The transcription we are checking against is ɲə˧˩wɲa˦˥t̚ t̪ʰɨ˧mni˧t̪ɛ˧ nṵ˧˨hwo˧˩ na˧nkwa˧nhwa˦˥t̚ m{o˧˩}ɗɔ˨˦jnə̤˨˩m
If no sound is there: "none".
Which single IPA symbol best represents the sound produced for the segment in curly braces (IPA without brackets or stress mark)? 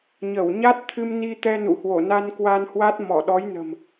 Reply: ɔ˧˩